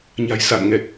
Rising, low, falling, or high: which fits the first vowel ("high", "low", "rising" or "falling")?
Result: low